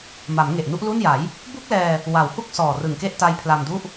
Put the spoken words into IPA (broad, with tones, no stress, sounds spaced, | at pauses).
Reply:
m a˩˦ m ŋ e˨˩ ʔ n u˥˩ ʔ l u˥˩ n j a˩˦ j | b u˥˩ k̚ l ɛː˧ | w a˩˦ w h u˥˩ k̚ s ɔː˨˩ r ɯ˨˩ ŋ k e˥˩ ʔ t a˦˥ j pʰ l a˧ m d u˥˩ ʔ